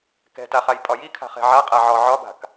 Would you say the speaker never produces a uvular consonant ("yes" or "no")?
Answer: no